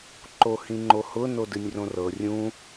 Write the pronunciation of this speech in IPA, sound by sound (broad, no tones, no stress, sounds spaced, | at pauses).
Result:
ǃ o h ĩ ŋ͡ǃ o h ʊ n o d ɨ nʲ r õ r ɤ rʲ ũ